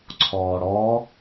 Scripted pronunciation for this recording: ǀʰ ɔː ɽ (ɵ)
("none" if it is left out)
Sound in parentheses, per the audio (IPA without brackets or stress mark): ɔ